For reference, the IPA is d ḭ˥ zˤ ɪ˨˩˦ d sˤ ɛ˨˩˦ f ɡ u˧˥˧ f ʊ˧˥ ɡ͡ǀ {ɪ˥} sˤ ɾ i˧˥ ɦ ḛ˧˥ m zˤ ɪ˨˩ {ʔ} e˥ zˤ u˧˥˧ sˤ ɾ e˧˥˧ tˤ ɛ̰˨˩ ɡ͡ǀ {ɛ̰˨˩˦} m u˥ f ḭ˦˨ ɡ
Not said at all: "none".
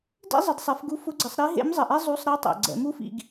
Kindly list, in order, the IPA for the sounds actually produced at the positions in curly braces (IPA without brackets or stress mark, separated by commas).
ɪ˨˩˦, ʔ, ɛ̰˨˩˦